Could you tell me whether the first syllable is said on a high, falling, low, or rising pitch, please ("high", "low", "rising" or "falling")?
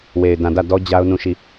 low